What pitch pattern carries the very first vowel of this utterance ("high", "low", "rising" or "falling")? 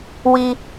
high